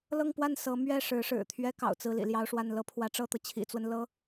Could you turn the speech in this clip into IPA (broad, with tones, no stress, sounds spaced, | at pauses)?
l ɤ˥˧ ŋ p w a˥˩ n s ɤ˧˥ m ɥ ɛ˥˩ ʂ ɻ̩˧˥ ʂ ɻ̩˨˩ t̪ʰ ɥ ɛ˥ k ɑ̰˨˩ ʊ̯ t͡s ɹ̩˥˩ l ḭ˨˩ l j ɑ˥˧ ʊ̯ ʂ w a˥˩ n l ɤ˥ pʰ w ä˧˥ ʈ͡ʂ ɤ˥˩ t̪ ɤ˩ t͡ɕʰ ḭ˨˩ t͡s w ə˦ n l ɤ˧˥